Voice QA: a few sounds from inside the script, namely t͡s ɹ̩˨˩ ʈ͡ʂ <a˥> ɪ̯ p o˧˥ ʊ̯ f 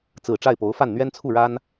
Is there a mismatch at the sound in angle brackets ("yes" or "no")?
yes